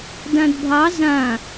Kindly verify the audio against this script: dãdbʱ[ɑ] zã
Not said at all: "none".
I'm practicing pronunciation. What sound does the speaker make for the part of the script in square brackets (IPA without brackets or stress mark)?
ɑ